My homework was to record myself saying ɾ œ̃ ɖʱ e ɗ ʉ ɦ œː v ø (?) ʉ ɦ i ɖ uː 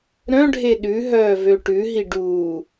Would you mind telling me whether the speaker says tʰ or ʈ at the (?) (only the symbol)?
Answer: ʈ